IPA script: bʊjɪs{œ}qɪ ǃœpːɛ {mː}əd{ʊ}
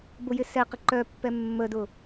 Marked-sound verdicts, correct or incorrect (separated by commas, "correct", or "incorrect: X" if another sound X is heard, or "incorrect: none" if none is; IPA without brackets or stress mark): incorrect: ɛ, correct, correct